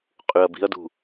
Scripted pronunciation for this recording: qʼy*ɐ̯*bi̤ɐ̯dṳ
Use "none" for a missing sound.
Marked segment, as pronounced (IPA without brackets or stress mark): ɐ̯